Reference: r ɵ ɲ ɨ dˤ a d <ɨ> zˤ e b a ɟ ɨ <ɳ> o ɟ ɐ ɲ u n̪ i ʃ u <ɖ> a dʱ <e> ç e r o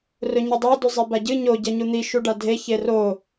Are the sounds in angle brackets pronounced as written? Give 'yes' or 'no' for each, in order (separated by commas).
no, no, yes, yes